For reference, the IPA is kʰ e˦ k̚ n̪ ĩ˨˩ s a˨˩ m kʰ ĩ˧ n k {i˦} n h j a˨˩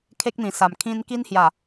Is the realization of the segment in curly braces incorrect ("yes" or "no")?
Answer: no